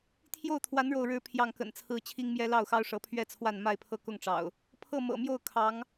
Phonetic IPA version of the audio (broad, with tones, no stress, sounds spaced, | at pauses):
t̪ʰ j o˥˨ ʊ̯ t̪ʰ w a˨˦ n ɻ o˥˨ ʊ̯ ɻ ɻ̩˦ pʰ j ɑ˥˨ ŋ k ə̰˨˩ n t͡sʰ ɹ̩˦ t͡ɕʰ i˦ ŋ m j ɛ˦ l ɑ˥˨ ʊ̯ x ɑ˦ ʊ̯ ʂ ɤ˨˦ pʰ ɥ ɛ˥˨ t͡sʰ w a˥˨ n m a˥˨ ɪ̯ pʰ ɤ˥˨ k ʊ˥˨ ŋ ʈ͡ʂ ɑ̰˨˩ ʊ̯ | pʰ ɤ˥˨ m ɤ̰˨˩ m j o˥˨ ʊ̯ kʰ ɑ˨˦ ŋ